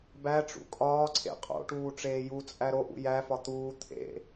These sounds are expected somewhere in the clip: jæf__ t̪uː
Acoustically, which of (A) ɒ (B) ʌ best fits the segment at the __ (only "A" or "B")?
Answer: A